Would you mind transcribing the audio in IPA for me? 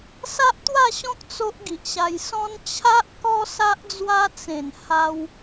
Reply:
sa˦ʔt̪wa˥˧ɕɔ̃˦k̚ t͡so˦ʔ ɡi˨ʔɕa˧j sɔ̃˦n t͡ɕʰa˦ʔkɔ˦ sa˦ʔd͡zwa˦ t͡sẽ˨˩n ha˦w

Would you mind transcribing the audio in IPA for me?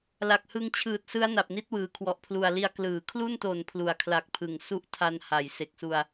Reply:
la˨˩k̚hɯ˧ŋt͡ɕʰɯː˨˩t̚sɯ˦˥a̯ na˨˩p̚ni˦˥t̚wɯː˩˦ kʰwɔ˨˩ʔpʰlu˨˩a̯li˧a̯ klɯː˩˦kʰlu˥˩nto˨˩n pʰlu˩˦a̯kʰla˨˩k̚pʰɯ˩˦ŋ su˦˥ʔtʰa˧nha˩˦j se˨˩k̚su˧a̯

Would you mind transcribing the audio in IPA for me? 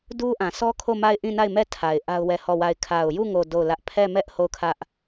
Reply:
du˦ʔã˨ sɔ˦kʰo˦˨ ma˦˨ɪ̯ʔĩ˦˨na˦˨ɪ̯mɛ˦˨ tʰa˨ɪ̯ ʔa˦ʊ̯wɛ˦˨hɔ˦˨wa˦˨ɪ̯ kʰa˨ʊ̯ju˦˨ ŋo˦˨do˦˨ʊ̯lä˦ʔ pʰɛ˦˨mɛ˦ʔ ho˦˨ʊ̯kʰä˦ʔ

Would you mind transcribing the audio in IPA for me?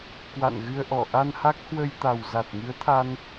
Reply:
kwa̰˧˨nɣɨ˧ə̯ʔɔ˧˩ ʔa˧nha˦˥k̚hwə˧jt̪a˨˩w za˨˩t̚ŋɨ˨˦ə̯t̪ʰa˧n

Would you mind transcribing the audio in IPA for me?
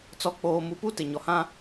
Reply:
t͡sɔ˨k͡poː˨ mu˨pu˦ tɪ˨ ɲɔ˨hã˦

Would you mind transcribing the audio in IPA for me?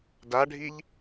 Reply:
daɖʱiʎ

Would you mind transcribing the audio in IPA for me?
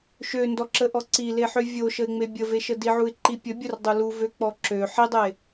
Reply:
ʃøndɔǁəʔɔ ǀileħø vʲoʃəɪ̯ŋ͡me bʲəveʃə diʕuɪ̯ǃi pʲə bʲərdˤu luvøk͡pɔ ǁø ħidˤe

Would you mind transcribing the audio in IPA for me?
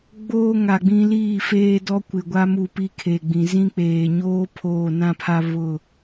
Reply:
ɡ͡boː˦ŋa˨ɡ͡bĩ˦ liː˦˨feː˦ dɔ˦kʷɪ˨ɡʷa˦ mu˦˨pi˦kʰe˨ɡ͡bĩ˨ zĩ˦k͡peː˨ɲoː˦ pʰoː˦˨nã˦pʰa˦ βʊ˦˨

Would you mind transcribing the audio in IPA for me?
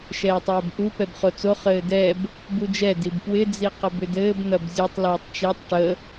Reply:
ʃɛːtˤɛːbʔu pɛbχot͡so χɘːdɛb | bud͡ʒɛ dibpwɪ d͡ziqɐbʏdɘːb n̪ɐbzʲutˤ lɛːtˤt͡ʃetˤ ʈə

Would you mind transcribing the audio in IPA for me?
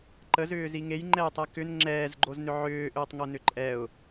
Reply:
ǃəzʏːzi ŋejŋ͡ǃɛjtˤɛ kʏn ŋ͡ǁɛːzɡ͡ǃoznʏ ʕʏːʔʏːtˤŋonʏ ǃʼɛʊ̯

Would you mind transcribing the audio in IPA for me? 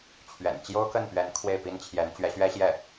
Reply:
t͡ɕʰɥɛ̰˨˩n t͡ɕjo˥ʊ̯kə˥˩npɥɛ˧˥n kʰwe˥˩ɪ̯pi˥nt͡ɕʰjɛ˧˥n t͡ɕɥɛ˧˥ɕɥɛ˥ ɕjɛ˥˩

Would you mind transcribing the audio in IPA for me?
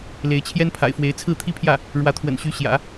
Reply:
le˧˥ɪ̯t͡ɕʰjɛ˥npʰa̰˨˩ɪ̯fwe˧˥ɪ̯ t͡sʰɹ̩˥˩t̪ʰi˥pʰjä˥˩ | ɻwä˧˥t̪ʰwə̰˨˩nɕy˧˥ ɕjä̰˨˩˦

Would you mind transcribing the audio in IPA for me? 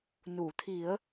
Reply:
nu˨˩˨t̪ʰi˨˩˦ə̯

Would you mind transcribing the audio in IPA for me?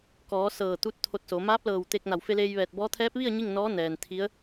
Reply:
kɔː˩˧ sɤː˧˩t̪u˧t̚ t̪ʰo˧t̚so˩˧ maː˧˥p̚lɤː˧˩w t̪e˧k̚na˧˩w fe˧leː˧jʋɛː˧˩t̚bɔː˧˥ t̪ʰɛː˧˥p̚ʋi˥˨ə̯ ɲi˥˨ŋnɔː˧˥nɛː˩n t̪ʰi˧˥ə̯

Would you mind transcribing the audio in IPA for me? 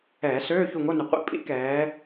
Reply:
ɛː˧˩˧søː˧˥˧ çu˦˨ŋo˧˥˧nʏ˨˩ qʷḭ˨˦ pʼḭ˦˥kɛː˨˦

